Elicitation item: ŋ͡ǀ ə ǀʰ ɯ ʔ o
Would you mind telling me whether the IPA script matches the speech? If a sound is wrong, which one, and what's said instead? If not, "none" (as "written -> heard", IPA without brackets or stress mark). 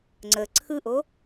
none